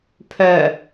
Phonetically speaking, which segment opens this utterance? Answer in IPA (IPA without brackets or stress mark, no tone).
pʰ